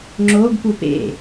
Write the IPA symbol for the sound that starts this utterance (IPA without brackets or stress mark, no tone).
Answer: ŋ͡ǁ